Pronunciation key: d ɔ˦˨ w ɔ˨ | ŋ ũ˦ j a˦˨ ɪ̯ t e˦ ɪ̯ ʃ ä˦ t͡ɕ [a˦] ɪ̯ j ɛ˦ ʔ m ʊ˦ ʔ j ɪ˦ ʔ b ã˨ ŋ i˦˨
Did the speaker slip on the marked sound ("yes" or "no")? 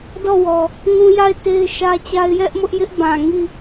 no